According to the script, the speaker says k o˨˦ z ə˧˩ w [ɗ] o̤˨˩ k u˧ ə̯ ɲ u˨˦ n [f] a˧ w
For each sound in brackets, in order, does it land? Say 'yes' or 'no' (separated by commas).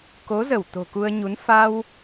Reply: no, yes